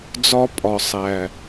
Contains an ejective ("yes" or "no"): yes